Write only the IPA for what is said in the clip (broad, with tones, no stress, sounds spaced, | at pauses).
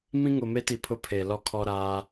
m ĩ˦ ŋ ʊ˨ m e˦ t i˨ pʰ ʊ˦ pʰ e˨ l ɔ˦ kʰ ɔ˦ ɾ aː˦